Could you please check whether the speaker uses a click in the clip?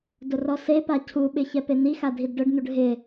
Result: no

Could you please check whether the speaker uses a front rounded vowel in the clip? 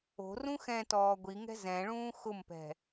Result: no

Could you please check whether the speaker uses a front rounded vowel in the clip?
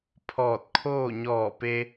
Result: no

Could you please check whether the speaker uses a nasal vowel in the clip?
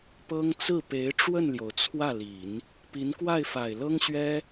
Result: no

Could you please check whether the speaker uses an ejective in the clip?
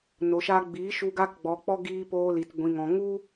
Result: no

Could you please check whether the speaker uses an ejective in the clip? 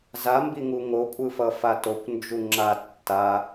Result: yes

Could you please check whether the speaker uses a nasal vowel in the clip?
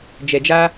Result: no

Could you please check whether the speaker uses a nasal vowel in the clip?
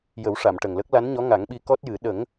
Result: no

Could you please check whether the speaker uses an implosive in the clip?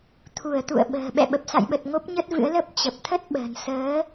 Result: yes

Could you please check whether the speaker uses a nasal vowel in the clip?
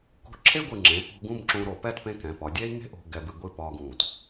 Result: yes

